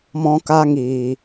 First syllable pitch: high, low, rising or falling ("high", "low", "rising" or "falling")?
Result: high